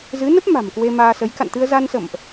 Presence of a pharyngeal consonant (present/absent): absent